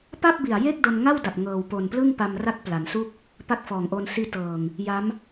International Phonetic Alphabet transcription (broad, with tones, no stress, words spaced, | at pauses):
pa˥˩p̚bi˨˩a̯ je˥˩k̚do˧nŋa˥˩wda˨˩p̚ ŋɤː˨˩wpo˨˩nplɯ˥˩ŋ pa˧mra˦˥k̚ pla˩˦nsu˥˩k̚ | pa˦˥k̚fɔː˨˩ŋʔoː˧n siː˧tɤː˨˩ŋ | ja˦˥m